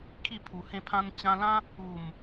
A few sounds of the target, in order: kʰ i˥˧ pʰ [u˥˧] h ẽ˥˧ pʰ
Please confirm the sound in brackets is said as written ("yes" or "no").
no